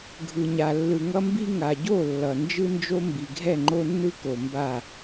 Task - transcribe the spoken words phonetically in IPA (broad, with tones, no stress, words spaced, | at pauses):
ɡʱɯ˨ɲa˨ lːɯ˨ŋʌ˦mbi˦ ŋa˨ɟo˦˨ lːʌ˨ nd͡ʒɯ˦nd͡ʒo˦ mbi˨ɡʱɛ˦˨ŋ͡ǃo˦nːɯ˦ ko˨mba˦˨